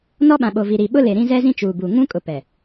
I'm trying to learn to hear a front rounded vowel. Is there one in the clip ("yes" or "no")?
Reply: no